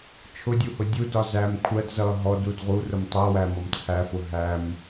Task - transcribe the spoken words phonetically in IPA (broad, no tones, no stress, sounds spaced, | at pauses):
t͡ʃʰ ʊ dʲ u h ʊ dʲ u d ɒ z æ m kʷʰ ɜ d z ʌ ɦ ɔ d u d ʁ u r ʊ m tˤ ɜ w æ m ɔ m t͡sʰ æ f ʊ ɦ æ m